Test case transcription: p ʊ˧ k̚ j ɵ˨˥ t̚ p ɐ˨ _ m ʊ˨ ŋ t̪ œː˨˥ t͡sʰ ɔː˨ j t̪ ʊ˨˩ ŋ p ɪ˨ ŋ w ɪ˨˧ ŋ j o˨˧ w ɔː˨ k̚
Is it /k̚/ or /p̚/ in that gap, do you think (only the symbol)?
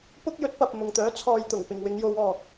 p̚